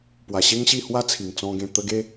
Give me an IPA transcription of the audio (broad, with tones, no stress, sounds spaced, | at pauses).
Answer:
p w a˨˩ ɕ e˦ ŋ ɕ i˥˧ h w a˦ t͡sʰ i˨˩ ŋ t͡s ɔ̃˧ ɡ ẽ˧ t̪ ə˧ ɡ e˧